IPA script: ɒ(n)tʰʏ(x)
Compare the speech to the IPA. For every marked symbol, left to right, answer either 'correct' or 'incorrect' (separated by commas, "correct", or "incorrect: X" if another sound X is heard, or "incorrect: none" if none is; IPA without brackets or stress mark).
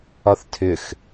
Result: incorrect: θ, correct